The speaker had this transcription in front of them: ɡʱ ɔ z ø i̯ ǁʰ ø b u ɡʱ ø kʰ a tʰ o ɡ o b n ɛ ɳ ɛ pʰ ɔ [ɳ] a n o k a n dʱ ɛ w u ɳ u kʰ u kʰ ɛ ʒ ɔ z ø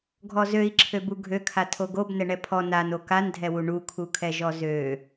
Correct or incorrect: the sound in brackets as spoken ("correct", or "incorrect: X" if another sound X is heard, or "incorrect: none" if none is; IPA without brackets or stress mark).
incorrect: n